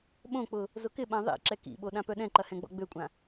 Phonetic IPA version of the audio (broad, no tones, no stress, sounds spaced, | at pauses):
ɓ õ k͡p ʊ | z ʊ k ɪ ɓ ã ðˤ ḭ ǁ ɛ k ḭ ɓ o ɗ ã p œ ɗ ɛ̃ ǃ ɐ h ɛ̃ ɡ͡b ɔ̰ ɡ͡b ø kʷʼ ã